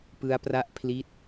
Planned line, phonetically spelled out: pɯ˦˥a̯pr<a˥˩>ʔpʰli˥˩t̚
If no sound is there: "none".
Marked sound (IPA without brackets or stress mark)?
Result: a˥˩